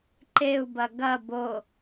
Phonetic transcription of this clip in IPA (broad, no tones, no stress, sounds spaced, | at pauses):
ǃ e u̯ b ɐ ɡ ɐ b o